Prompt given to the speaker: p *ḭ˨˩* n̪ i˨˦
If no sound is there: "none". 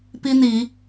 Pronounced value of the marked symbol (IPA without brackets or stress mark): i˦